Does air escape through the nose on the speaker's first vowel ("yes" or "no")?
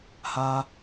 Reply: no